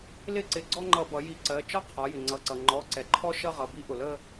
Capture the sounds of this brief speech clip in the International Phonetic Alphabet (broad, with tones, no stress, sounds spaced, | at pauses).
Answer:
l ɪ˦˥ ǀ ɪ˩˧ ɡ͡ǀ ɔ˥˧ ŋ͡ǃ ʌ˧˩˧ b ʌ˩˧ j i˧˩˧ ǀ ɜ˩˧˩ t͡ʃ ɒ˦˥ qʰ ɒ˩˧ j ɪ˩ ŋ͡ǀ ʌ˩˧˩ ǀ ʌ˩ ŋ͡ǃ ɔ˩˧˩ ǀ ɛ˩ ǃʰ ɔ˦˥ ʃ ʌ˥˧ ʁ ʌ˩˧˩ b i˦˥ ʔ ʊ˩ l ə˥˧